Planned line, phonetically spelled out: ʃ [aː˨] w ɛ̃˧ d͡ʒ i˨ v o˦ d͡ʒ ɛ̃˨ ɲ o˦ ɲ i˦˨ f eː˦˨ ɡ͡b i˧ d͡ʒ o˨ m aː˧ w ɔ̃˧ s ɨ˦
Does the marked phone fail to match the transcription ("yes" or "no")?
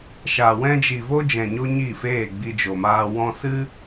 yes